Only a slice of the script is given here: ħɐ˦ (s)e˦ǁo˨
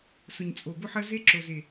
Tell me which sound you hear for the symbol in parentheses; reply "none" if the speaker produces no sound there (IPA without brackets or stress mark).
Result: z